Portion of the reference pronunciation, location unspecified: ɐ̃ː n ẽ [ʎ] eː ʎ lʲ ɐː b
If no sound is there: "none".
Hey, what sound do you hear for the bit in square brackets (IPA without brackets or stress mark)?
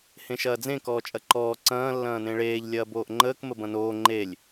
ɭ